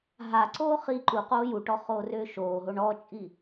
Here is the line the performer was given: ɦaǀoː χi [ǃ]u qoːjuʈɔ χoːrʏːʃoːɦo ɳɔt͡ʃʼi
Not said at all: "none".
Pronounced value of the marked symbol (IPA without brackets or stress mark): ǃ